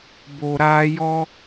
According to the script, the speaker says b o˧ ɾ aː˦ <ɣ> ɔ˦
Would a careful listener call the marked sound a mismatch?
yes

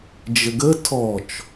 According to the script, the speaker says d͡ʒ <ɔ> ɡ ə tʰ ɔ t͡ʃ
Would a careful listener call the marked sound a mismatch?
yes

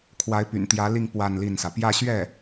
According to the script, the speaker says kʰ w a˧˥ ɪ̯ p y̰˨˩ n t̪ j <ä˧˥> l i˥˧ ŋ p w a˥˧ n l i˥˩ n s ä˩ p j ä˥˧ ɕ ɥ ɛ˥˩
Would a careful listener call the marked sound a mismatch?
no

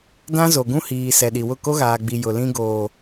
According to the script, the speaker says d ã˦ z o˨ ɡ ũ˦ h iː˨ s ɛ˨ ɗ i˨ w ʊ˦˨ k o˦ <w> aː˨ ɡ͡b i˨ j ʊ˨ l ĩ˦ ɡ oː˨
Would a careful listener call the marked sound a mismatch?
yes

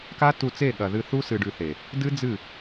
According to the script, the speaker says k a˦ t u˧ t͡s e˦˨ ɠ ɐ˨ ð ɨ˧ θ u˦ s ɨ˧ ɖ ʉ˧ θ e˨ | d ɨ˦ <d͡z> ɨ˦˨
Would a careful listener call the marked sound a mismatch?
no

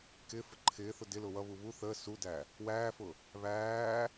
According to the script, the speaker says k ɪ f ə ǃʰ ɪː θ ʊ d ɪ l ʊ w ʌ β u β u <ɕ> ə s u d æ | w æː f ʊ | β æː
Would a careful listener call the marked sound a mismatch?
yes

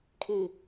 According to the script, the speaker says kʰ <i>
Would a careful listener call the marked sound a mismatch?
no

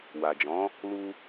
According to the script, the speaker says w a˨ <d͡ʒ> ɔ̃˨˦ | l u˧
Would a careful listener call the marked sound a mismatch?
no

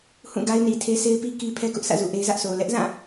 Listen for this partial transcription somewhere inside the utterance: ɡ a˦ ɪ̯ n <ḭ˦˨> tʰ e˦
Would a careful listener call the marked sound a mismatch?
yes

